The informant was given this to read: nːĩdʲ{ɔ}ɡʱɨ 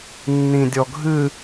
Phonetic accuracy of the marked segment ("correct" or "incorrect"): correct